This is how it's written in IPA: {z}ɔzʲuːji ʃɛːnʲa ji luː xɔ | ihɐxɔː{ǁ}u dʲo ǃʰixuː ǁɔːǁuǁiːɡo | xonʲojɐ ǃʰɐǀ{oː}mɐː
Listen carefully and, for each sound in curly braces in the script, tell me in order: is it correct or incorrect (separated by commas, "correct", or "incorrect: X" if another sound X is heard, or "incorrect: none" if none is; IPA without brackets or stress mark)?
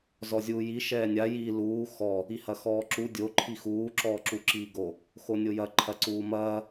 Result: correct, correct, incorrect: uː